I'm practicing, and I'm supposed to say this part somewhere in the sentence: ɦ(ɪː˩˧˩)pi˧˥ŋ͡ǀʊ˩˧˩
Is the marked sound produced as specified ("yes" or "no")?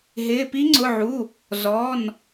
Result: yes